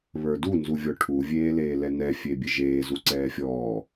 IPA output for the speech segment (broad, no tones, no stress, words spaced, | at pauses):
βə˞du nzuvʲɔʈʰu vʲeːleːlɛnɛ fʲebʲeʒeː zuǀɛːfʲɔː